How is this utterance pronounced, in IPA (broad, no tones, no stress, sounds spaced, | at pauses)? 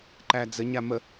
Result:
ǃ æ d͡z ə ɲ a m ə